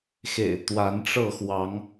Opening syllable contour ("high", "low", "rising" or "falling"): low